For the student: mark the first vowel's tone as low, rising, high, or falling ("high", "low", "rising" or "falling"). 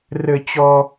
high